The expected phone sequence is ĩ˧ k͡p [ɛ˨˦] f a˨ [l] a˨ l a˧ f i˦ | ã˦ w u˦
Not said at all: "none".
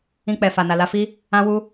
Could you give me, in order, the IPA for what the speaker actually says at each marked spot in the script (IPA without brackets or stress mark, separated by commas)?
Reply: ɛ˨, n